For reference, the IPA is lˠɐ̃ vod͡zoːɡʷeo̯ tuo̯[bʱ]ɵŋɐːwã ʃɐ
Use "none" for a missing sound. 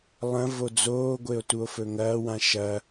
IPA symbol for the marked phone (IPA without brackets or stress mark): f